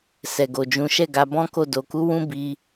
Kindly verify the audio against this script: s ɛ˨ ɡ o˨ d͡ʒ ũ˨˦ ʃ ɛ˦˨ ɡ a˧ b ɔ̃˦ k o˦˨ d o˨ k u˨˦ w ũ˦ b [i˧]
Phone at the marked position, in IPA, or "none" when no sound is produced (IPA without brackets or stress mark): i˧